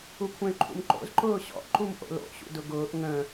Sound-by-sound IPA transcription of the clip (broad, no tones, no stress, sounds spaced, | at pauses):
u kʷʰ ɛ̃ y̯ ǃʰ ṵ m ǃ o̰ z ǃ ʊː ɕ ɔ̰ ʔ ǃ u m ʔ o̰ l o̰ ɕ ṵ d ʊ ɡ ʊː ʔ ŋ ə̃